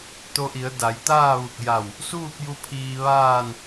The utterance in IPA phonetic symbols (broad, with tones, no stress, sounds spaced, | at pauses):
t̪ o˧ ʔ i˩˧ ə̯ d a˩˧ j t̪ aː˥˨ ʋ u˧˩ k̚ j a˧˩ w | s uː˥˨ p̚ j u˧ pʰ iː˧ ʋ aː˥˨ n